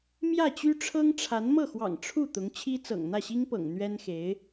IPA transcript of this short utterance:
m j ä˥˩ t͡ɕ y˥ ʈ͡ʂʰ ɤ˥ ŋ ʈ͡ʂʰ a˧˥ n m ɤ˥˩ x w ɑ̰˨˩ ŋ ʈ͡ʂʰ u˥˩ t̪ ʊ˧˥ ŋ t͡ɕʰ i˥ t͡s ɤ̰˨˩ ŋ n̪ ä˥˩ ɕ i˥ ŋ p ɤ̰˨˩ ŋ n̪ ɥ ɛ˥ n x e˧˥ ɪ̯

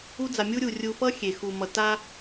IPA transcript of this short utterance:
u˧ d͡z a˨ mʲ u˧ ɾʲ u˨ rʲ u˧ f ʌ˦ xʲ e˨ x u˨ m ʌ˨ t a˧

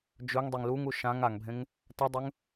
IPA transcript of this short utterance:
d͡ʒ ɵ ŋ dˤ e ŋ l u ŋ u ʃ ã ŋ a ŋ bʱ ẽ ŋ | t a dˤ ɵ ŋ

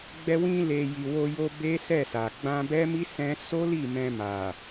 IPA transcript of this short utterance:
ɡ͡b ɛ˧ w ĩ˧ l e˨ j i˨ w o˧ j o˧ b e˦ s ɛ˦˨ s a˨ ɡ͡b ã˧ b ɛ˦ m i˦ s ɛ̃˦ s o˦ l i˦˨ m ɛ̃˧ m a˨

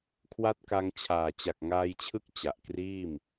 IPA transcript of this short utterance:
kʰ w a˦˥ t̚ k a˧ ŋ t͡ɕʰ aː˨˩ t͡ɕ a˨˩ k̚ ŋ aː˧ j t͡ɕʰ ɯ˦˥ k̚ t͡ɕ a˨˩ ʔ k r iː˥˩ m

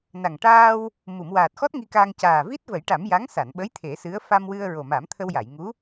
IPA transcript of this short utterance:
n a˨˩ ŋ ʈ aː˧ w | m u˨˩˨ m w aː˨˩ t̚ x ɔ˦˥ t̚ ŋ i˧ k aː˧ ŋ c aː˨˩ v i˦˥ t̚ v ə˨˩˦ j ʈ a˨˩˦ m j a˧˥ ŋ s a˨˩˨ n ɓ ə˧˥ j t̪ʰ e˨˩˦ s ɨ˧˥ ə̯ f a˧ m w ɨ˧ ə̯ ɹ o˨˩ m a˨˩˦ m t̪ʰ ə˧ w j a˨˩˨ j ŋ u˧˥

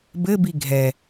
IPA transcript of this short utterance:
b ɘ b i ɡʱ ɛ

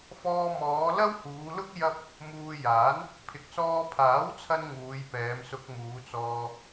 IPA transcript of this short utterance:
f ɔː˧ m ɔː˨˧ l ɐ˥ w h uː˨˧ l ʊ˥ k̚ j ɐ˥ p̚ | m uː˧ j aː˨˥ n | pʰ ɪ˨ k̚ s ɔː˧ pʰ aː˨˥ w t͡sʰ ɐ˧ n ŋ uː˨˧ j p ɛː˨˧ m s ʊ˧ k̚ m uː˨˧ t͡s ɔː˧

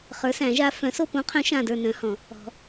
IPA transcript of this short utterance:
χ ə˞˨˥ s æ̃˨˩˦ ʒ a˨˥ f œ̃˨˥ s o˦˨ p õ˨˥ qʰ œ̃˨˥ ʃ ã˦˨ d ə˞˦˨ n œ̃˨˥ h ɔ̃˨˩˦ | ɔ̤˨˩˦

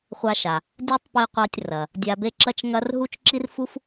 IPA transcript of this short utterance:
χʷ a˧ ʃ a˩ | dʲ a˥ tˤ p i˧ qʷ a˧ tʲ r ɐ˩ | dʲ a˧ b e˥ ǁ ɐ˥ t͡ʃ ŋ ɐ˥ r ɦ u˥ t͡ʃ ǁ i˥ r f u˥ f

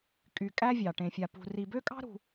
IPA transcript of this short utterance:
kʼ y˨ kʼ æ˦ vʲ ɑ˩ ʈ ẽ˨ fʲ a˨ p ṳ˨ r i˨ b ø˥ kʼ ɑ̤˥ ɾ ṳ˨

